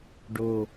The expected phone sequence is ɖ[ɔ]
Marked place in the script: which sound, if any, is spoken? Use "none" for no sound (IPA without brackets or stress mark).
o